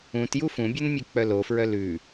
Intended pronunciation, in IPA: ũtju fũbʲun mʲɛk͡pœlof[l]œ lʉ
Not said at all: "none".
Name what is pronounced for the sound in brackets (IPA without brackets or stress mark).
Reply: ɹ